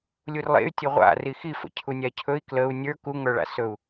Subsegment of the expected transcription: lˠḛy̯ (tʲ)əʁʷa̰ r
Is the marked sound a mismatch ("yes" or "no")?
no